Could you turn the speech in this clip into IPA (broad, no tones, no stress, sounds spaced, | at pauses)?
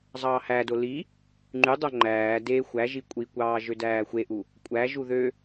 zˤ ɑː h æ d o l i | ŋ͡ǃ y dˤ o ŋ͡ǃ æː d e xʷ æ ʒ i kʷʼ i kʷ ɑː ʒ ø d æː xʷ e ʔ u | kʷʼ æ ʒ u ð ø